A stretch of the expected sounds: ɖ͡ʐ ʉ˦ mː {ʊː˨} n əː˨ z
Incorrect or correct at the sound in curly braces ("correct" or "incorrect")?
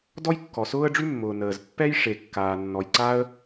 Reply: correct